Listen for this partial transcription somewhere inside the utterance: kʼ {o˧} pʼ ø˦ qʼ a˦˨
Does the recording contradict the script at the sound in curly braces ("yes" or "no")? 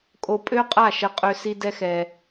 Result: no